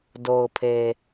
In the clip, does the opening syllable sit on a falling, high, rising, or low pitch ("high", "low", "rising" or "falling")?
low